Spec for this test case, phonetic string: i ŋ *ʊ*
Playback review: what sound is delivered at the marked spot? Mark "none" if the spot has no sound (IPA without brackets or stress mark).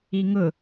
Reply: ʊ